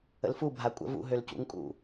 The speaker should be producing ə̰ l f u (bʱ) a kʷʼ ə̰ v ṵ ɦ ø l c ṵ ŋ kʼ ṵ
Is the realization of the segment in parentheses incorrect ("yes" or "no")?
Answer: no